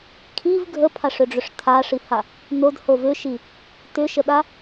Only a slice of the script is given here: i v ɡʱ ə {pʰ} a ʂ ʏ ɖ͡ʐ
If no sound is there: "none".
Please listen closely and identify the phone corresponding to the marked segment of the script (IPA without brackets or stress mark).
pʰ